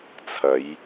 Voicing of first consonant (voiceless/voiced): voiceless